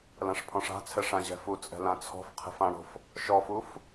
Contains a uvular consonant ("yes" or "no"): yes